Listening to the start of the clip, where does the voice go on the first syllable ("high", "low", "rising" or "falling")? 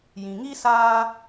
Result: low